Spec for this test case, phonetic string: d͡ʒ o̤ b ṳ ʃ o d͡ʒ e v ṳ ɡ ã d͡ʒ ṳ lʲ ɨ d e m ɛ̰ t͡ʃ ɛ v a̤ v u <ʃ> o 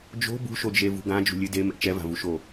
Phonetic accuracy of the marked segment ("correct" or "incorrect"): correct